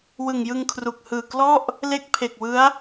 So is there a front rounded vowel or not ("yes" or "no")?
no